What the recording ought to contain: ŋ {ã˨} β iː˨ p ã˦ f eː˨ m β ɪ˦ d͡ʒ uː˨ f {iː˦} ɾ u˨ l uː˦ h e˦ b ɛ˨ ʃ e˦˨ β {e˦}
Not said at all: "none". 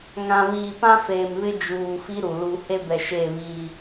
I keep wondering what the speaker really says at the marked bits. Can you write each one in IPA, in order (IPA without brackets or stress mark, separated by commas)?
ã˨, i˦, i˦